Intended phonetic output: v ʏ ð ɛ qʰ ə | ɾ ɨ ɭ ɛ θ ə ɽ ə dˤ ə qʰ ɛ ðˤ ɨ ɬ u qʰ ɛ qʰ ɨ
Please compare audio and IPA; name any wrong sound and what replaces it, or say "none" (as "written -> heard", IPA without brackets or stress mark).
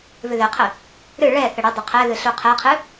ðˤ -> ð